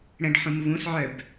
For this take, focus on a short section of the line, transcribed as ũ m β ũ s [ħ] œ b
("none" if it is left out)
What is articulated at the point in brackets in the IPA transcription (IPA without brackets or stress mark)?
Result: ʕ